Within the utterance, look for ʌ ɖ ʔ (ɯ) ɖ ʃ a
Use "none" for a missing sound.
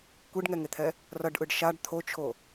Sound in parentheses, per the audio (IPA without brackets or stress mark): ɯ